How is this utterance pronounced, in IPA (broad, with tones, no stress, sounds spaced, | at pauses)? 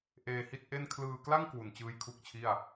ʔ eː˧ h i˥˩ t̚ ʔ e˥˩ n kʰ l ɯː˧ k l a˥˩ ŋ k w u˨˩ n t͡ɕ ɯː˦˥ j kʰ u˦˥ k̚ t͡ɕʰ i˥˩ a̯